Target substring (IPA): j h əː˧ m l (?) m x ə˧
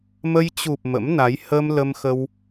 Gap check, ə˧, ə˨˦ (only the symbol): ə˧